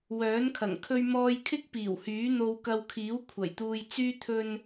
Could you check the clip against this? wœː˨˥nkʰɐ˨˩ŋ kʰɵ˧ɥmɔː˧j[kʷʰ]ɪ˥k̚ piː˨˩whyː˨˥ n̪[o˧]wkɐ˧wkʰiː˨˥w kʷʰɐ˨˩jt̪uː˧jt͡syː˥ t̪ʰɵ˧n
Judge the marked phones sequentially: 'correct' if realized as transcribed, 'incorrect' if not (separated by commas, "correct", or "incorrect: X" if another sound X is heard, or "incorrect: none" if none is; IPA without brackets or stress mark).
incorrect: kʰ, correct